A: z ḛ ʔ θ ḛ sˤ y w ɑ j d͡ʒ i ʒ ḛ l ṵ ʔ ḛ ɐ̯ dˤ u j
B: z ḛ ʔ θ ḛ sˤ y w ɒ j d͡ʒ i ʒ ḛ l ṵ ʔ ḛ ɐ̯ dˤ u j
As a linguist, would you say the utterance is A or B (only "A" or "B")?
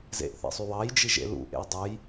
A